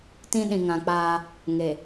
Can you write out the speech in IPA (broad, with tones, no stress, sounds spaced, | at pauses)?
t ĩ˦ ɗ ĩ˨ ŋ ã˨ k͡p aː˦ | ŋ e˨